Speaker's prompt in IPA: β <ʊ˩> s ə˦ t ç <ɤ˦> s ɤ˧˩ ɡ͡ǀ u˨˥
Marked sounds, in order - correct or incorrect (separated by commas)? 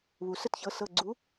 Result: incorrect, incorrect